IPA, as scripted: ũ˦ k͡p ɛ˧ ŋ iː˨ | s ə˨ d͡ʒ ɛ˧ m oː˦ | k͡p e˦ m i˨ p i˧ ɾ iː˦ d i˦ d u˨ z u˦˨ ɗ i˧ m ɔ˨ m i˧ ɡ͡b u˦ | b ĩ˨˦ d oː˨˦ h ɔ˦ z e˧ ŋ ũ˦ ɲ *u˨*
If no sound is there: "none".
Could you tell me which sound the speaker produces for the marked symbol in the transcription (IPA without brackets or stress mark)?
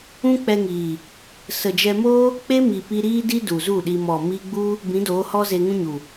u˨